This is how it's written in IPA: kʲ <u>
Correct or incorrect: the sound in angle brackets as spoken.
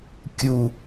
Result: correct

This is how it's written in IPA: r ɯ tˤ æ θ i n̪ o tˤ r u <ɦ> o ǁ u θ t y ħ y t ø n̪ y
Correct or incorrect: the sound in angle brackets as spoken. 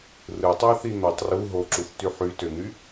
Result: correct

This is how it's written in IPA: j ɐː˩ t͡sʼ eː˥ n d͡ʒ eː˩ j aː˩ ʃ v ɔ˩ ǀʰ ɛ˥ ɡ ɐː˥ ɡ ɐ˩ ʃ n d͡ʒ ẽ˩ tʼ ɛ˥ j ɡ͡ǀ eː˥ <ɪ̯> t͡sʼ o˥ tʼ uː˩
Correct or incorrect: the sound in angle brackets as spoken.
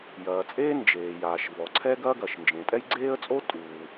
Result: incorrect: ə̯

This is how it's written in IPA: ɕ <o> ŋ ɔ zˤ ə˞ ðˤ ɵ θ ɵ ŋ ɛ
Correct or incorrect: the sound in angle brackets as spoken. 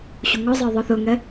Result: incorrect: u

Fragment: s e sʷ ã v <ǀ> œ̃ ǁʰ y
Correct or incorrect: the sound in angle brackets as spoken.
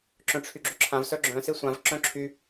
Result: incorrect: ǁ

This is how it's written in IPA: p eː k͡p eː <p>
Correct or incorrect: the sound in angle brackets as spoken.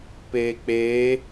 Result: incorrect: none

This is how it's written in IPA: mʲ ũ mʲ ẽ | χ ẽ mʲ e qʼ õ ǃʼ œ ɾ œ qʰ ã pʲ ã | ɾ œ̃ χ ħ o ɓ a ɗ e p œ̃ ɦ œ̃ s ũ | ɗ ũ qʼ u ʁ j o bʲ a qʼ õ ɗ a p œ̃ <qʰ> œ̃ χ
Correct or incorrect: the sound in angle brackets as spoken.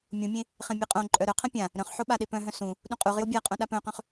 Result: incorrect: q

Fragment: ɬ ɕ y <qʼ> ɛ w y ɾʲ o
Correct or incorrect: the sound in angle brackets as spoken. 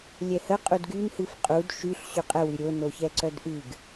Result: correct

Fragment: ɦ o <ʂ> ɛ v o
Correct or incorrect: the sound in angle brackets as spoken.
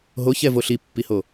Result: incorrect: ç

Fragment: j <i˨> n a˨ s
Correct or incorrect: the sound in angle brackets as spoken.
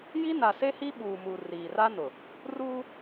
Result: incorrect: i˦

